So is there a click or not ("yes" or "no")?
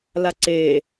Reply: yes